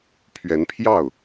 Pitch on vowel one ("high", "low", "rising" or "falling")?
rising